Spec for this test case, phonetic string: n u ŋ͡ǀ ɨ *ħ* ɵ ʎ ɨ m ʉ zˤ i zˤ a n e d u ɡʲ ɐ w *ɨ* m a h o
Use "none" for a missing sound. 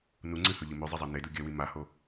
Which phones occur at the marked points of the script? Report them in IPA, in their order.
h, i

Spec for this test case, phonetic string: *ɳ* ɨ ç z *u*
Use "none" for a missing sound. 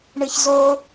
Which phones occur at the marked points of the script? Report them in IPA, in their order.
ɳ, o

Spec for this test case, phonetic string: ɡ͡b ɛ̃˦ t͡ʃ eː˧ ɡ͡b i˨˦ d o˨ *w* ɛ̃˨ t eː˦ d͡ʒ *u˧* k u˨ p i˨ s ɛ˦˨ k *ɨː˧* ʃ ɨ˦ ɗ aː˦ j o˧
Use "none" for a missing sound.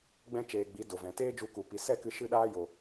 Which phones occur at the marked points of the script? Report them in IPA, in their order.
v, u˧, ɨ˧

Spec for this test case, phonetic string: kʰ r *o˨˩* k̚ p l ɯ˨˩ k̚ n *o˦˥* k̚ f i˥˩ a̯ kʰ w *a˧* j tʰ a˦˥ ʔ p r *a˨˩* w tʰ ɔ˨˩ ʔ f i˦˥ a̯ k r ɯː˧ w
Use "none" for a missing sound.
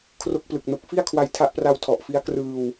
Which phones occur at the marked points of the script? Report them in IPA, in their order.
o˦˥, o˦˥, a˧, a˧

